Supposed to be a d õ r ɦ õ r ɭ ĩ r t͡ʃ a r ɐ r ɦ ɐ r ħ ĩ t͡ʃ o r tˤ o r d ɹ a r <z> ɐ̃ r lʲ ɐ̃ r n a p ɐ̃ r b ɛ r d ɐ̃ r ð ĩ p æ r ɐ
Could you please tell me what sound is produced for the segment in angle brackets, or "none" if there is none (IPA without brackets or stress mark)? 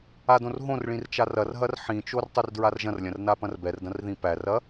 ʒ